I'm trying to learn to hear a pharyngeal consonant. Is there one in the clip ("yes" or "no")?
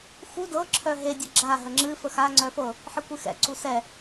yes